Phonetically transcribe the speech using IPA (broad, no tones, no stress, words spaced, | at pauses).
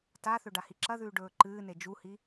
taθɵ ɖahiǁɐðʉː ɖɵːǃɨːne d͡ʒuhi